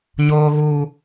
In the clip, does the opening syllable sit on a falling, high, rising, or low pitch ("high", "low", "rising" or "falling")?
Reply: high